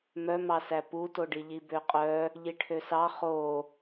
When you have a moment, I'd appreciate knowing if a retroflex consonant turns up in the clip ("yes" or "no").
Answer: yes